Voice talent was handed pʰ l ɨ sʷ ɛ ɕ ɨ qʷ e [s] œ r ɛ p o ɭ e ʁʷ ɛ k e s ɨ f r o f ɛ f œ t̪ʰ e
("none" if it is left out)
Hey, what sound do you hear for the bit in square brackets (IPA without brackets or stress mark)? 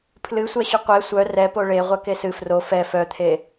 sʷ